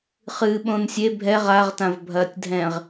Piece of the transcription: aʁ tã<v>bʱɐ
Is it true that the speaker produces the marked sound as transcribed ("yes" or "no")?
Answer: yes